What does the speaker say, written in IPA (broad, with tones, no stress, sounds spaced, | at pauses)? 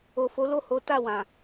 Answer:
o˨ f o˨˦ l o˦˨ h o˨˦ t a˦˨ w ã˨